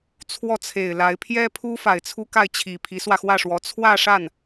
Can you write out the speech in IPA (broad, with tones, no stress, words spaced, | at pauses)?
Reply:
t͡sʰwɔ˥˩t͡sʰe˨˩ɪ̯la˧˥ɪ̯ pʰjɛ˥pʰu˥ fa˨˩ɪ̯t͡sʰu˥ka˥˩ɪ̯t͡ɕʰi˨˩ pʰi˧˥swä˧xwä˥˩ʂwɔ˧˥ t͡sʰwä˥˧ʂa˥˩n